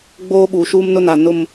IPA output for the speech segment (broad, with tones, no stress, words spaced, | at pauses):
ɡ͡boː˦ɓuː˨ʃuː˦m nʊ˦na˨ nʊ˦˨m